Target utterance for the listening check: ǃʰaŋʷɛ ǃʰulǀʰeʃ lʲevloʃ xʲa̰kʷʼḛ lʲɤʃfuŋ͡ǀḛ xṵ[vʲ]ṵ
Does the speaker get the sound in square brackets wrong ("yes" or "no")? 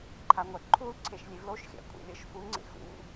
yes